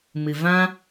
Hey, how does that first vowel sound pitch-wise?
low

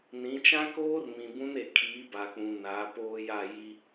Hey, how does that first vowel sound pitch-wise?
rising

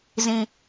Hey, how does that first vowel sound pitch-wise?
low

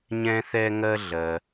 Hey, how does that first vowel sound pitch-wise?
high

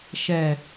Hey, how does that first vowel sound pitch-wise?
low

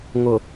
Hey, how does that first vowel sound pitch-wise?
low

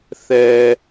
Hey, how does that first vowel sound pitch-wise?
low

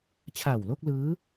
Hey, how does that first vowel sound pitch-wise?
low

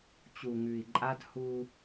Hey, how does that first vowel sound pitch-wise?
low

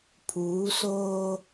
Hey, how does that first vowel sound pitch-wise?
rising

